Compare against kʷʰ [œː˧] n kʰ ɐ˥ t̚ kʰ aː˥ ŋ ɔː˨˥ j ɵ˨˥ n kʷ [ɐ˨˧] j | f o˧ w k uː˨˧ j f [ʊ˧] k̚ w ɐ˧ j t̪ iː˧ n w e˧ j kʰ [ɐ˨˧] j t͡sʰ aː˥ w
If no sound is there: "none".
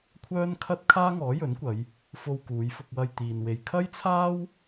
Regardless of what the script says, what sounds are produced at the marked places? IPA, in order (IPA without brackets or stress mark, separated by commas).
œː˥, ɐ˨˧, ʊ˧, ɐ˥